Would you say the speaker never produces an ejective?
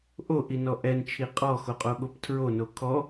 no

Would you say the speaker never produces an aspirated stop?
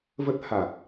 yes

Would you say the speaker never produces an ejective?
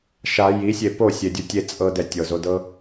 no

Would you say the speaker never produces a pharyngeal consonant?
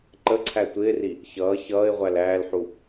no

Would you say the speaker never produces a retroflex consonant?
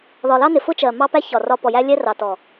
yes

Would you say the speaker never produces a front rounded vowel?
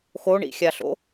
yes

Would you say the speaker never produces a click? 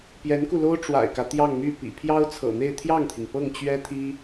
yes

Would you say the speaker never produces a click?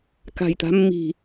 yes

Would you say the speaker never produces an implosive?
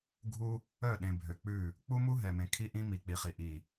no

